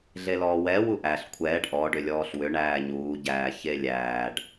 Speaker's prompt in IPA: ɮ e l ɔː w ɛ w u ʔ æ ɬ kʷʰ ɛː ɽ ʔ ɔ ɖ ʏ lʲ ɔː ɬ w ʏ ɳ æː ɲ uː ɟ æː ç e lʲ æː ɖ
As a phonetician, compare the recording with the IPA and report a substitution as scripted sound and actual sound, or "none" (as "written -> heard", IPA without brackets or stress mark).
ɽ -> ɖ